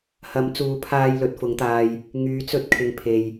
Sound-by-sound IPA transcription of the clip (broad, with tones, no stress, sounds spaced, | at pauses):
h ɐ˨˥ m t͡s uː˨˧ pʰ aː˧ j l ɵ˨˥ t̚ f ʊ˨˥ ŋ t̪ aː˧ j | ŋ yː˨˥ t͡s ɵ˥ t̚ kʰ ɪ˨˧ ŋ pʰ e˨ j